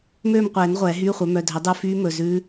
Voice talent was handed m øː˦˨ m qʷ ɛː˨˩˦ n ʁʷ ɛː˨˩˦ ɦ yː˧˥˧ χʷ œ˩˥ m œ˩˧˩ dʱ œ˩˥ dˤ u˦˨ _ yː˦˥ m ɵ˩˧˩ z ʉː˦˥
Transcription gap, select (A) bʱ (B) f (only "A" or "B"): B